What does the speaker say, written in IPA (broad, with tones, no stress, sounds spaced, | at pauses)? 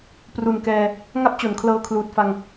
p r u˨˩ n k ɛː˧ | ŋ a˥˩ p̚ t͡ɕ o˩˦ n kʰ l ɤː˧ kʰ l uː˨˩ t̚ f a˧ ŋ